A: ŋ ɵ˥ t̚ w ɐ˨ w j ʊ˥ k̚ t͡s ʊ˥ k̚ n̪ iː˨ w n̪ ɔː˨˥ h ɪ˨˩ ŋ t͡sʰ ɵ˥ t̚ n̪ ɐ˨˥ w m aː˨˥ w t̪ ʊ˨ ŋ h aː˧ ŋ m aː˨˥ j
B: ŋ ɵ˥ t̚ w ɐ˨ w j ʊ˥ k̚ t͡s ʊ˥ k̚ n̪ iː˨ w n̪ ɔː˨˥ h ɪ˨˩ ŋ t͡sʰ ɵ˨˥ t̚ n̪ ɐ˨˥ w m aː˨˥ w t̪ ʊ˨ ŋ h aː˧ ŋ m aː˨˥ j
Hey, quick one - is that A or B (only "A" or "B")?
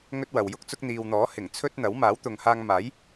A